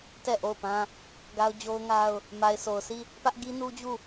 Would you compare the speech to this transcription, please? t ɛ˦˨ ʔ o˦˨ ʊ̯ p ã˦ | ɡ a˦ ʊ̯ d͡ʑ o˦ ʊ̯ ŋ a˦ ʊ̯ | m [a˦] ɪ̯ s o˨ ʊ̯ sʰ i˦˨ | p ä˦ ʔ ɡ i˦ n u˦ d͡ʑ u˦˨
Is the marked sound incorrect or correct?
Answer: incorrect